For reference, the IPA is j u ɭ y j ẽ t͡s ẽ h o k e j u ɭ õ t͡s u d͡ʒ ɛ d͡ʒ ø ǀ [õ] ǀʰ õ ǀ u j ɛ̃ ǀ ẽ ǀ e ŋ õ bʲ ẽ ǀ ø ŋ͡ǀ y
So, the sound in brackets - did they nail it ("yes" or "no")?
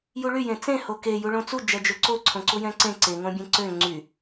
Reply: no